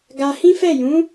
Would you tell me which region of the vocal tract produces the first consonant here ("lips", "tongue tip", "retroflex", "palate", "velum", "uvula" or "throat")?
velum